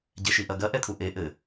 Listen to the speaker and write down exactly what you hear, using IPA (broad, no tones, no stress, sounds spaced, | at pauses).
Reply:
ɟ ɛ ʃ i ʔ ɐ ɡ ɐ ʔ ɛ t̪ʰ u ʔ e ʔ ɘ